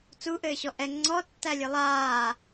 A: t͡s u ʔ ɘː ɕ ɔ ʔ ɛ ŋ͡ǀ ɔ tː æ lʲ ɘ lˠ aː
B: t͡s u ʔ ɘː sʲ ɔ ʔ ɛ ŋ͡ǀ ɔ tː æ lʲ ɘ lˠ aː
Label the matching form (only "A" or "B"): A